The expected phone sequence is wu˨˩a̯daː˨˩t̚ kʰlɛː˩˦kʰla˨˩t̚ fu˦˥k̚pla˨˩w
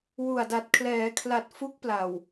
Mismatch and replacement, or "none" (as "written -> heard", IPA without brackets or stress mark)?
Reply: aː˨˩ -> a˨˩